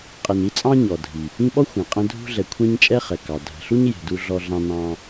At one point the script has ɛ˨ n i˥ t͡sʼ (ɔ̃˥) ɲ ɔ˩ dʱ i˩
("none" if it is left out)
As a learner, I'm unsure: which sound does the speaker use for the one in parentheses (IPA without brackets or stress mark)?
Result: ɑ̃˥